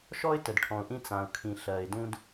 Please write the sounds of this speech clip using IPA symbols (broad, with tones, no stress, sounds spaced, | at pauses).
ʃ ɔ˦ ɪ̯ t ə˨ d ʈʰ ɔ̃˨ ʊ̯ ʔ ĩ˦ t͡s ã˨ ʊ̯ kʰ ĩ˨ ɬ ɜ˨ ɪ̯ d ũ˦ d